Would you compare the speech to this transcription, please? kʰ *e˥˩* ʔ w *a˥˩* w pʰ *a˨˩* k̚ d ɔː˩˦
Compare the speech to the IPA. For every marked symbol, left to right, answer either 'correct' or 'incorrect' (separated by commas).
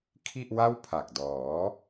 incorrect, correct, correct